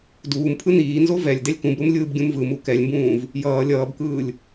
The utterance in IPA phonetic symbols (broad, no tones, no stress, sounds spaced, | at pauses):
d uː m pʰ ɯ n iː n z o v ɛ lʲ d ɛ lʲ k ũ b ɾ u m lʲ ɯː b ɡʲ ũ m v ɯ m u k ɛ lʲ m b ũː v | j ʌː lʲ ʌː b k ɯː lʲ